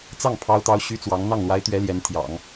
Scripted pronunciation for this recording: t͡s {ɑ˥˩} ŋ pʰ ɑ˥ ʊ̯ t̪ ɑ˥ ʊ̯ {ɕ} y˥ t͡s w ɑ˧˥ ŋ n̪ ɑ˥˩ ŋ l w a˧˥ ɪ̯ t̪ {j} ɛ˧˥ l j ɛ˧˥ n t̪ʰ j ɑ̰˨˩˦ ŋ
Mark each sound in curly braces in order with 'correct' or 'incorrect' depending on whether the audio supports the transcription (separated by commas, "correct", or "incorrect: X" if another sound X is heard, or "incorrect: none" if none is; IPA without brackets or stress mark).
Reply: correct, correct, incorrect: ɥ